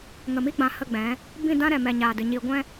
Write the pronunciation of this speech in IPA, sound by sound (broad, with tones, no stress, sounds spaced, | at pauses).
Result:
ŋ ə˨ m i˦ ɡ͡b ã˨ h ə˦˨ ɡ͡b ɛ̃˨˦ | b ĩ˦˨ d ã˦ ɾ ɛ˨ m ɛ˨ ɲ aː˨ d ɨ˨ ɲ iː˧ ɡʷ ɛ̃˦